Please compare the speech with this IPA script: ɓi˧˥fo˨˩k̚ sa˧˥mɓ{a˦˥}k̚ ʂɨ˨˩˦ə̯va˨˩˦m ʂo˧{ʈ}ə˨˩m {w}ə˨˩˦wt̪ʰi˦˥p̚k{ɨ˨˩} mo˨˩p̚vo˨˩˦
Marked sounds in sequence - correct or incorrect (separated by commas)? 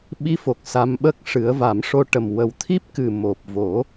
incorrect, correct, correct, correct